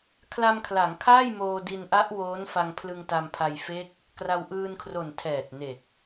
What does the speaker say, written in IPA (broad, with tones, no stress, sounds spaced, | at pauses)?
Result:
kʰ l a˧ m kʰ l a˩˦ ŋ kʰ aː˥˩ j m oː˧ d i˧ n ʔ a˦˥ ʔ w oː˦˥ n f a˧ ŋ pʰ l ɯ˧ ŋ t a˧ m pʰ a˧ j f e˦˥ k̚ | k r a˧ w ʔ ɯː˧ n kʰ r o˨˩ n tʰ ɛː˨˩ t̚ n e˨˩ k̚